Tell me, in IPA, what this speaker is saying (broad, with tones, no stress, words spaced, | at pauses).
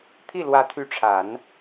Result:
t̪ʰi˥˩lwä˧˥t̪ʰy˧˥ʈ͡ʂʰa˨˩˦n